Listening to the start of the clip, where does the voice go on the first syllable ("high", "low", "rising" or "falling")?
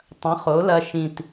rising